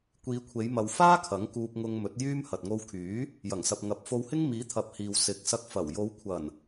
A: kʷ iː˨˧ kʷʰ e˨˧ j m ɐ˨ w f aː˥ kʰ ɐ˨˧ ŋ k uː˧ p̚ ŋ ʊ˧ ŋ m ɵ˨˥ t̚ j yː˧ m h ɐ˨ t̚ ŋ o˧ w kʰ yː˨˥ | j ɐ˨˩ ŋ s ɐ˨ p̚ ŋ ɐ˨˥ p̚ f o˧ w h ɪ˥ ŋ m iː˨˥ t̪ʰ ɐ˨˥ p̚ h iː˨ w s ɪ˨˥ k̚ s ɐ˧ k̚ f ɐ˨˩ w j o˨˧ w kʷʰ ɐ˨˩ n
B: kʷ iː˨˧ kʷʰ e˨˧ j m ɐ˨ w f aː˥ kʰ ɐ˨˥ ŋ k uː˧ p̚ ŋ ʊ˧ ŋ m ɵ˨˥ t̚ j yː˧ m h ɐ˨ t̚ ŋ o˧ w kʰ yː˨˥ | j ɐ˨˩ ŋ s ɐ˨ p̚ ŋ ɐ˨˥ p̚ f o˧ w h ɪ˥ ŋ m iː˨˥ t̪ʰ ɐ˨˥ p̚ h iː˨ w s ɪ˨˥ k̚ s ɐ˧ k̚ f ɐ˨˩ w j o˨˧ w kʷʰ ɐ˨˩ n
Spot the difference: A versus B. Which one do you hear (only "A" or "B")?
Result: B